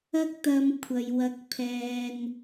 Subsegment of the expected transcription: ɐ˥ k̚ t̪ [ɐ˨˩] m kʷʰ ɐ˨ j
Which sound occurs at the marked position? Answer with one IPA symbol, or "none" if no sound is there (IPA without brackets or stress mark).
ɐ˧